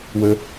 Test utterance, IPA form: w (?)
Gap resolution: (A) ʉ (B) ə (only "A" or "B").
B